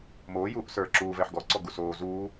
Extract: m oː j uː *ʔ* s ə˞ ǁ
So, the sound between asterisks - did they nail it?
yes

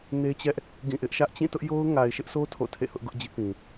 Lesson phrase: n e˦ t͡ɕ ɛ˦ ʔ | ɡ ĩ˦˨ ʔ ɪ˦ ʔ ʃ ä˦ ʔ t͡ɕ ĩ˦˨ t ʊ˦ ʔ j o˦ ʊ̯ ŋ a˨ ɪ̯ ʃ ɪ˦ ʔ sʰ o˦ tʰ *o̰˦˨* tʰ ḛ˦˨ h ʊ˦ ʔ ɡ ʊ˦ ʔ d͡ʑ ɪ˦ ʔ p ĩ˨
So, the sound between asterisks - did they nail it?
yes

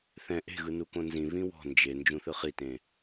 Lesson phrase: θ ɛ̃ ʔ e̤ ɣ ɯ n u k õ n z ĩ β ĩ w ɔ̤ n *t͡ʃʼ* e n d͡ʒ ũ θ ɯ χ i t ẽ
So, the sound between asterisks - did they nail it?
no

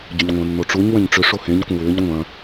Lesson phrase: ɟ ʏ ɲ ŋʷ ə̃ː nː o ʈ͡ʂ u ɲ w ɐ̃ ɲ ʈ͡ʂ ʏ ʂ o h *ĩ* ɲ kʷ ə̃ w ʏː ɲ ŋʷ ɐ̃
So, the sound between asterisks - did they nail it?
no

